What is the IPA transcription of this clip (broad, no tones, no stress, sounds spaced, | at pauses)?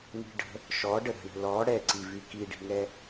n i̤ ɖ ə̤ | ʃ ɔ ɖ ə ɾ ə̤ ɳ ə̤ l ɔ ɽ ɛ ǀ i v y k i ɖ i̤ ŋ ɛ